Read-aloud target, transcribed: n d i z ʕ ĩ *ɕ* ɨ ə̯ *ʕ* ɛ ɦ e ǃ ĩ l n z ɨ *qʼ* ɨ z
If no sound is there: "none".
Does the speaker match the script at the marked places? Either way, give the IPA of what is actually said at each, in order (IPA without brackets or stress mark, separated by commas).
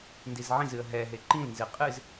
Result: z, ɦ, qʼ